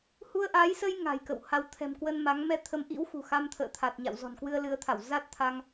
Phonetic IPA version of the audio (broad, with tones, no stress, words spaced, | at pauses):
hu˧ə̯ʔaː˨˦jsə˧j ŋa̤˨˩jkə̰˧˨wha˨˦w t̪ʰɛ̤˨˩mkwə˧n ma˨˦ŋmɛ˧ t̪ʰə˨˦mʔḭ˧˥wxṳ˨˩ xa˧mt̪ʰə̰ː˧˨t̪ʰa˨˩t̚ ɲa̰˧˨wzɔ̤˨˩nkwɨ˧ə̯ lɨ˨˦ə̯t̪ʰa˧˩w za˦˥t̚t̪ʰa˧ŋ